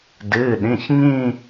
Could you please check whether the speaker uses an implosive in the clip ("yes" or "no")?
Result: yes